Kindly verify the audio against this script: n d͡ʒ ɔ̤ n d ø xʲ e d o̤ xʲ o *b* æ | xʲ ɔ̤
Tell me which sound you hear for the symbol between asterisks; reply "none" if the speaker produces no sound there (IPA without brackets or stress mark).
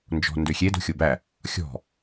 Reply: b